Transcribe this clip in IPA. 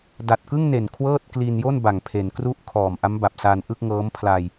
da˨˩t̚kɯ˥˩ŋne˨˩n kʰwɤː˥˩t̚kli˧njo˥˩n ba˨˩ŋpʰe˩˦nkru˥˩ʔ kʰɔː˨˩mʔa˦˥mba˨˩p̚ sa˧n ʔɯ˥˩k̚ŋɤː˦˥mpʰla˧j

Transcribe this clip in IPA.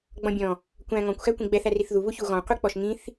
ɡ͡bɔ̃bʲɔ̃ | kʷæ̃ ŋɔ̃kʷ xækʷĩɡ͡bɛθ æriθðu βuçuɣɔ̃ qʷik͡pɔʃŋĩθ

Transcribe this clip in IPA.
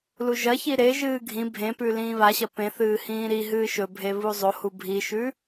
luʒɐçi ɾeʒɨː ɡʱĩ bʱẽpʉ lĩːβaɕɐ pẽθɨː hĩːɾiɦɨː ʃɵbʱe βuzˤohu bʱiʃʉ

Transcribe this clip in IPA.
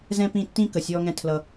zɛ̃˦pĩ˦˨ tːĩ˦kə˨ sʲɔː˦ŋɛ̃˦tʰlʌ˦

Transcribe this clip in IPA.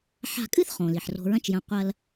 ħa̤˧kʼɨ˥θχõ˩ li˩ħro̤˧ɹɐ̃˥t͡ʃjɐ̃˧ qʷɐ˥l

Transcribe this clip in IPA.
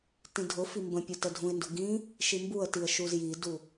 tĩdʱʊfi mbə̃pʲu tədʱũɪ̯ndʊ ɡĩ | ʃimbuə̯tiə̯ ʃuzjidu

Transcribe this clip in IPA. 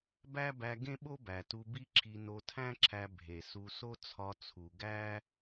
bæ˥bæ˧ ɡẽ˥ɓo˥bæ˩tu˧ bi˥ǁʰi˧ no˧tʰæ̃˥ǁʰæ˧ bʱe˩su˧ so˥t͡sʰɒ˧t͡sʰu˩ ɡæ˥

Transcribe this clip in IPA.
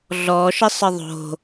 ɮɔʃə sˤəðˤo̤

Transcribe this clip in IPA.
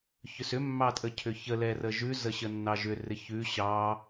çʏsʏ mːɑtʼəcʰʏçə lɛrəʒʉ zəɕənːɑʒʏ rɪçʉ ɕɑ

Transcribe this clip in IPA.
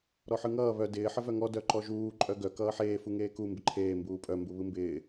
ɾɔħɯŋʌː βœ dɪː ħəvœŋɔ dœǃɔʒuː ǃʼœɡœ kʌːħeː fuŋeːku mbɪǃʰeː mbuːpʼœ mbuβɯmbɪː

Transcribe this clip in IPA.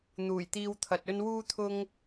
n̪uː˨˩jt̪iː˧wt̪ʰɐ˨t̚ɵ˥n wuː˥t̪ʰʊ˥ŋ

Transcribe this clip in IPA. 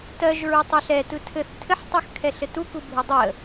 tɜʒɹutˤu ɬɛtɯ tʰɘθ tʰɘħtˤɯxkʰɛɬɘ tukubʱu dˤə

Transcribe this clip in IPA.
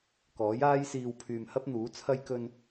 kɔː˨˥jaː˥jsiː˧w pʰyː˧mhɐ˥p̚n̪uː˨˥ t͡sʰɐ˧jkɵ˧n

